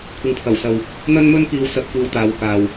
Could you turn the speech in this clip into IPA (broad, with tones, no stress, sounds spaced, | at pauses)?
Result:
kʷʰ ɪ˨ ŋ pʰ ɐ˨˩ w s ɐ˨ w | n̪ ɐ˥ n m ɵ˥ n k iː˧ w s ɐ˧ p̚ kʷ iː˧ w t̪ aː˨˧ w k aː˨ w